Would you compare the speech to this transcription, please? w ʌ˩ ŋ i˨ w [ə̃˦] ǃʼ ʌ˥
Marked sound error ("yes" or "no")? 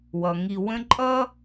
no